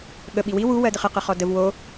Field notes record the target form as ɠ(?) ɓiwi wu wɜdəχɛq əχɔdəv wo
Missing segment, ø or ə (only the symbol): ə